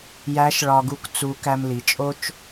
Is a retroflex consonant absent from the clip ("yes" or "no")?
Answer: no